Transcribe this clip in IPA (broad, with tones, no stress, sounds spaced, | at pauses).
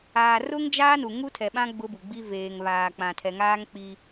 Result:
aː˨ r ʊ˦ ŋ d͡ʒ aː˦ n u˨ ŋ u˦ tʰ ɛ˨ ɓ ã˦ ɡ͡b ʊ˦ b u˨ ɡ͡b i˦ v eː˨ ŋ β aː˨ k͡p ã˨ tʰ ɛ˨ ŋ aː˦ ŋ k͡p i˦